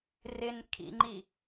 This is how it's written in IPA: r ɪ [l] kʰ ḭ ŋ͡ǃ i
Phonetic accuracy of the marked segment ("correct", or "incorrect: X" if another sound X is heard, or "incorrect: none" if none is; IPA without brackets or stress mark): incorrect: n